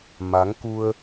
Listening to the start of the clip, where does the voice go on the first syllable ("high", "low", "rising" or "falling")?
rising